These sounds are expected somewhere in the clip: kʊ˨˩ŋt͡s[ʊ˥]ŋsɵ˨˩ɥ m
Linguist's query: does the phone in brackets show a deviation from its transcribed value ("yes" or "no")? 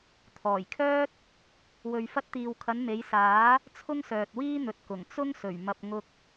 no